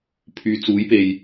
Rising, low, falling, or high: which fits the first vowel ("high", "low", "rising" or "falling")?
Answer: low